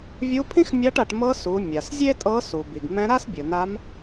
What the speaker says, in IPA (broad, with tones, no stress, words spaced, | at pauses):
vʲu˧˥pʰĩ˥xmʲa˧˥ʈa˩˧ʈ mɤ˧˥ su˩˧ mʲa˩szʲe˥tʼɤ˧˥ su˩bi˩ɡ mɛ̃˧˥ ɾa˥sbʲɯ˩na˧˥m